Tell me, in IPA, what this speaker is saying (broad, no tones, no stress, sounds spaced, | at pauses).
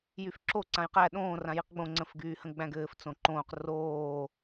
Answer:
j y f ǁ o ǀ ã j q æ ɗ õː r ã j i q ɡ͡b õ ŋ͡ǀ ə̃ f ɡ yː h ə̃ ɡ͡b æ̃ ɡ ɘː f t͡s õ ǃ õː q r oː